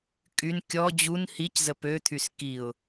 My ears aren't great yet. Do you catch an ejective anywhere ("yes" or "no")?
yes